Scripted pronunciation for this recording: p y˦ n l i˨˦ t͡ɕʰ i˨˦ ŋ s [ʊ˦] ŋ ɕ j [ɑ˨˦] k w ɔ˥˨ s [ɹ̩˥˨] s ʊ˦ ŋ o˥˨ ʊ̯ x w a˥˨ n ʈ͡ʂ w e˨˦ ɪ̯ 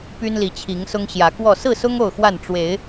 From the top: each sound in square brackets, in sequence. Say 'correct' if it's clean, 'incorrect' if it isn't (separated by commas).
correct, incorrect, correct